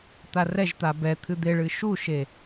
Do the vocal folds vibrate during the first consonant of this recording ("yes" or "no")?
no